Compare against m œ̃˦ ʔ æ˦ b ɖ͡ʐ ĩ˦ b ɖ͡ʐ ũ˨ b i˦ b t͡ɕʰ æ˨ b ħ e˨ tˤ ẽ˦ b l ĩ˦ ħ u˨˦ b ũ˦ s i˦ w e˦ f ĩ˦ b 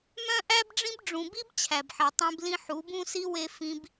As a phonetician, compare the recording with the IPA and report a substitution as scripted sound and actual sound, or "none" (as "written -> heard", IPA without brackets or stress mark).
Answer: none